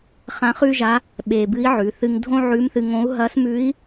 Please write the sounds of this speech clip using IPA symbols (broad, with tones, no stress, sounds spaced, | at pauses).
χ ã˧˥ χ ʉ˥ ʒ a˧˥ | ɓ e˧ b ɨ˧˥ i̯ ʕ ʉ˩˧ θ ɨ˧ ŋ dʱ õ˥ ʕ ʉ˧˥ m θ ɨ˧ ŋ õ˧˥ u̯ ɦ ɐ˧˥ s m ʉ˧˥ i̯